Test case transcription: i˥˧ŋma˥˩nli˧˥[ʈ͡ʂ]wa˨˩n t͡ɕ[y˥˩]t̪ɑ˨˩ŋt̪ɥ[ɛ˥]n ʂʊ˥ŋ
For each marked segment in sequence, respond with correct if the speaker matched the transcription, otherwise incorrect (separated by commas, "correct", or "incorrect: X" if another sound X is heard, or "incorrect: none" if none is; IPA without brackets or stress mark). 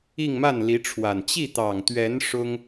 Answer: incorrect: ʈ͡ʂʰ, incorrect: i˥˩, incorrect: ɛ˧˥